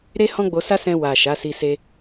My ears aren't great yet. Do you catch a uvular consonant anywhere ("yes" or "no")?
no